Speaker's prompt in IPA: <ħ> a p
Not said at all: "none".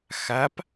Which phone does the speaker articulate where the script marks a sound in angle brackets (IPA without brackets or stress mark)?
x